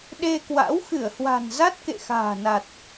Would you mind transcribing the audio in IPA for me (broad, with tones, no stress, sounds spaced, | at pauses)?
ɗ e˧ k w a̰˧˥ w x ɨ˧˩ ə̯ h w a̤˨˩ n z a˦˥ t̚ k ḛ˧˨ x a̤ː˨˩ n a˨˩ t̚